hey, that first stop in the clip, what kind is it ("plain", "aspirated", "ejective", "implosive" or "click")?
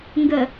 plain